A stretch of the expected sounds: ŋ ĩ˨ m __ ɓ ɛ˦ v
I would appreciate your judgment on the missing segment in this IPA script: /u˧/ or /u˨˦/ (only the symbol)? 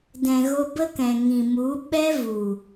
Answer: u˨˦